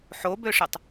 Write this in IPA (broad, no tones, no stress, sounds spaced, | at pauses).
ħ o b ø ʂ ɪ tˤ